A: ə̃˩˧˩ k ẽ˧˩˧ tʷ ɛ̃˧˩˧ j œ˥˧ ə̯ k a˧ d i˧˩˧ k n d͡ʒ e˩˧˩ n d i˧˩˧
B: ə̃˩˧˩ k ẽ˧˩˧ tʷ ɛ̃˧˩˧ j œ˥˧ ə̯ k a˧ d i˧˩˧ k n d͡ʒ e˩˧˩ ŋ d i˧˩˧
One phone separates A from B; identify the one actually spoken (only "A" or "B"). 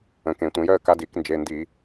A